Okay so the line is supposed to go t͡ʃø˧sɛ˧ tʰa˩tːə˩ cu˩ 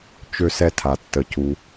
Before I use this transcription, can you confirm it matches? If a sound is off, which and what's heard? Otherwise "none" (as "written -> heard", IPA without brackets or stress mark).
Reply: none